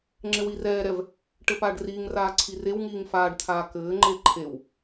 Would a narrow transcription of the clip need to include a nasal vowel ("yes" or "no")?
no